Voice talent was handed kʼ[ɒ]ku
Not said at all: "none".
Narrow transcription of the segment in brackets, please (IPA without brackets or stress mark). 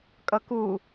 ʌ